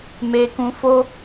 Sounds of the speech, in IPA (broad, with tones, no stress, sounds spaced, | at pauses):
m e˧ k ũ˧ f o˦